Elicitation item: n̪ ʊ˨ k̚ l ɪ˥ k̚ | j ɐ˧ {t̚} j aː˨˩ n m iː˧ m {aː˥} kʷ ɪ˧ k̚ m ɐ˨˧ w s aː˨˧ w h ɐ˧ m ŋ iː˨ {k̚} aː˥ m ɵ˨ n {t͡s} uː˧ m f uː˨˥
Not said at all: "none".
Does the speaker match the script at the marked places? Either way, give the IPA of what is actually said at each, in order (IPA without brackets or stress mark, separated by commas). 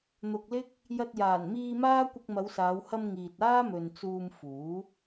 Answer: t̚, aː˥, t̚, t͡s